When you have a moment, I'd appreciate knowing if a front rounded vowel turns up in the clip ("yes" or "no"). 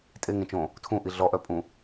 yes